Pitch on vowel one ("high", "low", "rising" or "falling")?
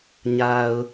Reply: low